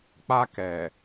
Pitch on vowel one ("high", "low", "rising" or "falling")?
high